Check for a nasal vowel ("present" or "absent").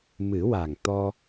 absent